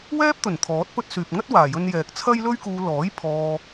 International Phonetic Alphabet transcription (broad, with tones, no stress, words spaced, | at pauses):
wɛː˥p̚t̪ɵ˨˩n t̪ʰɔː˨˥t̚pɵ˥t̚syː˨p̚ ŋɐ˥t̚ waː˨˩jɵ˧n jɛː˨k̚t͡sʰɐ˥jlɵ˥ɥkuː˧ lɔː˨˥j pʰɔː˧